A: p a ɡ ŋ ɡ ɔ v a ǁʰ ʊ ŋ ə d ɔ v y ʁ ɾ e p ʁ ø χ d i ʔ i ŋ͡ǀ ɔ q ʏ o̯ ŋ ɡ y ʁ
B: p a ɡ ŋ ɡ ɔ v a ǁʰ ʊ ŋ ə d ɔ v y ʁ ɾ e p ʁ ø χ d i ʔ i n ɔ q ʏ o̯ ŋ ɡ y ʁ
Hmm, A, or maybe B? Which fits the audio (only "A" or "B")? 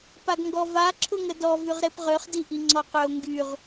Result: A